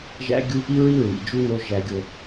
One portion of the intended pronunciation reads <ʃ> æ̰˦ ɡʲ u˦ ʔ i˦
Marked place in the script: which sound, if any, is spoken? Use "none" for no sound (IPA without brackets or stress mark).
ʒ